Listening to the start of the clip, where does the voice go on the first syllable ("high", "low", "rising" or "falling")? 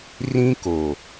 high